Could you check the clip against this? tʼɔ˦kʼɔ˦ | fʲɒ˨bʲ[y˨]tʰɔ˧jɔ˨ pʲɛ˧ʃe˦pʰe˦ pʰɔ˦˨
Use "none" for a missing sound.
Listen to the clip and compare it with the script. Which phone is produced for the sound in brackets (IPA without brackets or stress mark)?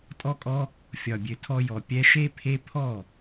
ø˨